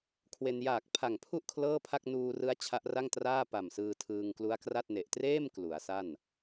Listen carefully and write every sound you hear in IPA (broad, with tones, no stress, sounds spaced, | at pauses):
kʰ w e˧ n j aː˨˩ k̚ pʰ a˨˩ ŋ pʰ u˥˩ ʔ kʰ l ɤː˥˩ pʰ a˥˩ k̚ n uː˧ r ɯ˦˥ a̯ t͡ɕʰ a˦˥ ʔ r a˥˩ ŋ t r aː˥˩ p a˨˩ m s ɯː˧ tʰ ɯː˧ ŋ k l u˦˥ a̯ k r a˥˩ t̚ n e˨˩ ʔ t r eː˥˩ m k l u˩˦ a̯ s a˥˩ n